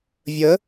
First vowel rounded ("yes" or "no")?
no